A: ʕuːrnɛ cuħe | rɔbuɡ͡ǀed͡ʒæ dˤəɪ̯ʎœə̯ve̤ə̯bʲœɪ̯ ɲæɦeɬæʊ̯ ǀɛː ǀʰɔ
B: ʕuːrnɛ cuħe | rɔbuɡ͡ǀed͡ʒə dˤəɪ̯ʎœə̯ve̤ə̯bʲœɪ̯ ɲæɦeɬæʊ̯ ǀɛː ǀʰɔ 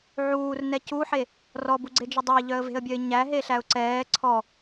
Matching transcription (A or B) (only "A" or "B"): B